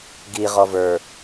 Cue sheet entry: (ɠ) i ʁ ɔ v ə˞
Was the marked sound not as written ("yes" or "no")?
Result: yes